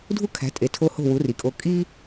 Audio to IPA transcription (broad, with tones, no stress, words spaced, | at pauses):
dʱu˥kʰæ̤˩˥ tʼe˩tʰo˧ ho̤˥˩wu˩˥ri˩kʼo˧ kʼi˥